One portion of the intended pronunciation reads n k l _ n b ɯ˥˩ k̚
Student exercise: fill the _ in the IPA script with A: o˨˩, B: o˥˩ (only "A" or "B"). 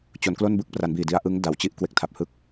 B